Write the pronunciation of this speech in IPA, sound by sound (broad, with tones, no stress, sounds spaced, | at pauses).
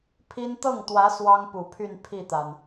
pʰ i˥ n t̪ ɤ˥˩ ŋ t̪ w ä˧˥ s w ɑ˥ ŋ p u˨˩ pʰ y˥˧ n pʰ i˥˩ t̪ a˩ n